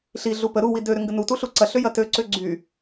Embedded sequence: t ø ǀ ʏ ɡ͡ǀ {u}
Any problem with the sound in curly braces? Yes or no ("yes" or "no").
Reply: yes